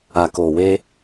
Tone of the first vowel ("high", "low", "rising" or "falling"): low